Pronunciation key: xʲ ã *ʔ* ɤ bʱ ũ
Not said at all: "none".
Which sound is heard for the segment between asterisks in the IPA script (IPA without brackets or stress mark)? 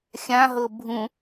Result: ɦ